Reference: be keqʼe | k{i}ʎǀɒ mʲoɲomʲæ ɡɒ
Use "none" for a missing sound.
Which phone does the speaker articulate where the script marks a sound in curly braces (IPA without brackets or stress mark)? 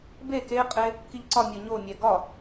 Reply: i